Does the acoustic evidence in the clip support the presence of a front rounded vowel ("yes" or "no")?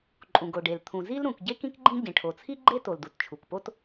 no